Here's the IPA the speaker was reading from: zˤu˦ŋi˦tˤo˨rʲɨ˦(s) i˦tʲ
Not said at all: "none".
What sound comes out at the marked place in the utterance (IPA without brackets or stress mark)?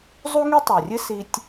s